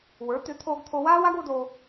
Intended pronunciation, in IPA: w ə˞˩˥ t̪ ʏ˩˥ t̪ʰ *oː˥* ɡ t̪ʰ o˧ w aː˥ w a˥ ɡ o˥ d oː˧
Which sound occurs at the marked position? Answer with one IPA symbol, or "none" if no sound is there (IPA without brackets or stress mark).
oː˧